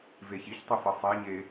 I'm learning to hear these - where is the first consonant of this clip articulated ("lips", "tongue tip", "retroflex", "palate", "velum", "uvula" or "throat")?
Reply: lips